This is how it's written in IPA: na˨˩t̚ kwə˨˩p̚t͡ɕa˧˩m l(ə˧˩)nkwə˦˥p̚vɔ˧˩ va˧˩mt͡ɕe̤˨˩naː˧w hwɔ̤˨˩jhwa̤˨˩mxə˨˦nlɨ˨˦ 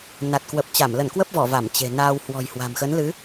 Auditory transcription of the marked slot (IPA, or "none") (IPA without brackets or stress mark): ə˧˩